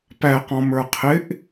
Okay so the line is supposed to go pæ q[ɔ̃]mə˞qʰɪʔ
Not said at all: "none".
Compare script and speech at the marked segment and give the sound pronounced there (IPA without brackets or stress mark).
ɔ̃